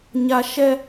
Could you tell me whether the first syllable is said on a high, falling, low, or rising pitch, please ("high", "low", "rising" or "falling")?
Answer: high